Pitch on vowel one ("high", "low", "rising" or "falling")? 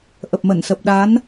low